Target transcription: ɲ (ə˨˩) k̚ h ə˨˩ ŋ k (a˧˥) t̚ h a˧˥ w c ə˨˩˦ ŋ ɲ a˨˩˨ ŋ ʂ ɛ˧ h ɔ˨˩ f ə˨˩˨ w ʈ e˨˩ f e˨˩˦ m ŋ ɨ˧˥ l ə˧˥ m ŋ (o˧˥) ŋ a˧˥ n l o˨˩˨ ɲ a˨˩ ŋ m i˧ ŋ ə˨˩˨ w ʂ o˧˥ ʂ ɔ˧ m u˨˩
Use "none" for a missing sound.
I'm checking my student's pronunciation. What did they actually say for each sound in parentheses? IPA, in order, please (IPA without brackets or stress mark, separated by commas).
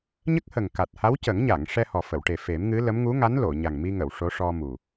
ə˦˥, a˨˩, u˧˥